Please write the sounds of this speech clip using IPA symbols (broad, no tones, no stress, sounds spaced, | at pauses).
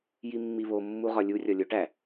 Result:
j i mː i β o mː u ʁ ɒ lʲ u rʲ ɒ lʲ o ʈ æ